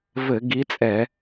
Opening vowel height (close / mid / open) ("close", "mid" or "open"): mid